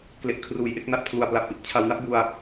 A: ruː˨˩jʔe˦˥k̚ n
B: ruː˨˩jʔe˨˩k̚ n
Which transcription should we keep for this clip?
A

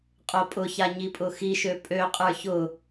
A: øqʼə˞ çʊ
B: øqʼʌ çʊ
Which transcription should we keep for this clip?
A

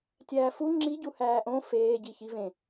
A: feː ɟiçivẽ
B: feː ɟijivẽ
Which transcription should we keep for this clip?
A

